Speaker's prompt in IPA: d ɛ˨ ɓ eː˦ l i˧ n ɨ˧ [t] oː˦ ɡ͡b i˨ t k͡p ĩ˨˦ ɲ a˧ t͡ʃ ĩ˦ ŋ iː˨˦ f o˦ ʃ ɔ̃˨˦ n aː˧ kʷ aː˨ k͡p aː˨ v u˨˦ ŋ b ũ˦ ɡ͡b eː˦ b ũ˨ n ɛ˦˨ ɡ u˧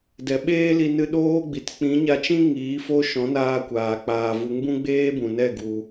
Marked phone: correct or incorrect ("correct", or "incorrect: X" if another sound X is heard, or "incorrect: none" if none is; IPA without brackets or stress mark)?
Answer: incorrect: ɗ